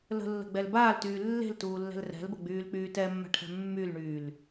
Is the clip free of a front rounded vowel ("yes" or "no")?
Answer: no